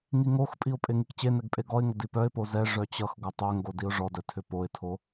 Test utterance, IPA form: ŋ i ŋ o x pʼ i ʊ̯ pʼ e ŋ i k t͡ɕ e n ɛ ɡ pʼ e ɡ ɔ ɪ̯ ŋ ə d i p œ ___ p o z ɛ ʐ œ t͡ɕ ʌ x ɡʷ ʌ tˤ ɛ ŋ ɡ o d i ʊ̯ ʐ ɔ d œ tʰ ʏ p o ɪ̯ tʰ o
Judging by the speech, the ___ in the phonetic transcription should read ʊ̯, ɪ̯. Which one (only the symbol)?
ɪ̯